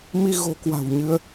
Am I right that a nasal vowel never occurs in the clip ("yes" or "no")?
yes